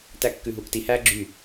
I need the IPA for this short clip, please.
t æ kː ʉ ɦ uː k t i h æː ɡ͡ǁ y

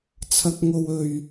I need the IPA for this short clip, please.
t͡sʰ ɐ˥ k̚ ŋ o˥ w ɵ˧ ɥ

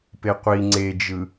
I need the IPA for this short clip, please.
p e qʷ i ŋ͡ǀ e d͡ʒ ɯ

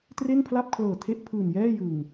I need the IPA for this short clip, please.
t r e˥˩ n pʰ l a˥˩ p̚ kʰ l ɤː˨˩ tʰ e˦˥ ʔ pʰ ɯː˨˩ n j ɛː˥˩ j ɯ˨˩ ŋ

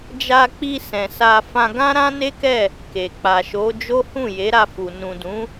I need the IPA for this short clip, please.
d͡ʒ a˧ k͡p i˧ s ɛ̃˨ s a˧ f ã˧ ɡ ã˦ ɾ ã˦ n e˦ k ɛ˦˨ | k e˨ k͡p a˨ ʃ o˨˦ d͡ʒ o˦ h ũ˦˨ j e˨˦ ɾ a˧ f u˨ n ũ˨ d ũ˨˦

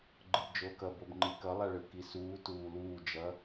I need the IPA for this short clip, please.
ɡ͡ǃ ɯ b d͡ʒ oː k ʌ b o b ŋ͡ǃ i k ʌ lˠ a ɭ ɯ k i s uː t uː l uː d͡ʒ ʌ

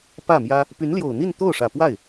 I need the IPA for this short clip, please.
p ä˥˩ m j ä˥ | p y˧˥ n l j o˨˩ ʊ̯ n̪ i˥˧ n t̪ o˥˩ ʊ̯ ʂ ä˨˩ p w a˥˩ ɪ̯

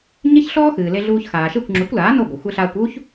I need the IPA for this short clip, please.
ɲ e˥ ç ɬ ɔː˥ x ɨː˩ l e˧ ɮ uː˧ ç x aː˩ ʃ e˥˩ kʷ ŋ͡ǁ u˩˥ kʷ l aː˩˥ n o˥˩ ɡʷ e˩ xʷ e˧ ɬ aː˧ kʷ uː˥ ç

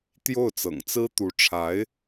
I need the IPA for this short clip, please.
t̪ j o˥˩ ʊ̯ t͡s ɤ̰˨˩ ŋ t͡s ɹ̩˥ t̪ u˧˥ ʈ͡ʂʰ a˧˥ ɪ̯

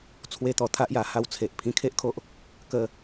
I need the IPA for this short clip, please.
t͡sʰ w e˦ t̪ ɔ˧ t̪ʰ a˦ ʔ j a˧ h a˧ w t͡sʰ e˨ ʔ pʰ ĩ˧ kʰ e˦ ʔ kʰ o˦ ʔ | k ə˦

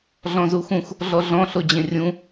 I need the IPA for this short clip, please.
ɮ ɔ̃ z u x ũ x | ɮ ɔ ɮ ɔ̃ ɬ o d͡ʑ ẽ rʲ ũ

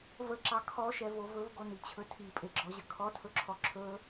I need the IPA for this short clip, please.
v ə ǁ ɑ kʰ ɔ ʃ ɛ v o v ɵ v ɡ o n i t͡ɕʰ ɵ tʰ i pʼ e ɡ͡ǁ ɔ ʑ ə kʰ ɔ tʰ ɵ ǁʰ ɔ ǁʰ ɵ

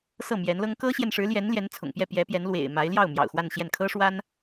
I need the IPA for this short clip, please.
s ɤ˥˩ m j ɛ˧˥ n l ɤ˥ ŋ k ɤ˥ ɕ j ɛ˨ n ʂ ɻ̩˧˥ l j ɛ˧˥ n l j ɛ˧˥ n t͡sʰ ʊ̰˨˩ ŋ p j ɛ˥˩ p j ɛ˧˥ p j ɛ˧˥ n l w ḛ˨˩ ɪ̯ m a˧˥ ɪ̯ l j ɑ˥˩ ʊ̯ m j ɑ̰˨˩ ʊ̯ x w a˥˧ n ɕ j ɛ˥˩ n kʰ ɤ˥ ʂ w a˥ n

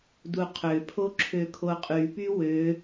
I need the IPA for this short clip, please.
d u qʰ ø pʰ o ǁʰ ø kʰ o qʼ y p y w ø

